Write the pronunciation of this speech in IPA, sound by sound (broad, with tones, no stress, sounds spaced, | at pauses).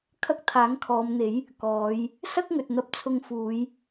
kʰ ɐ˧ k̚ t̪ʰ aː˨˥ ŋ kʰ ɔː˨˧ m n̪ e˨˥ j | k ɔː˨˧ j | s ɐ˥ k̚ ŋ ɵ˨ t̚ n̪ ɐ˧ p̚ t͡sʰ ʊ˧ ŋ f uː˨˧ j